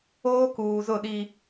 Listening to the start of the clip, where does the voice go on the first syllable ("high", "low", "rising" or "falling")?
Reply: high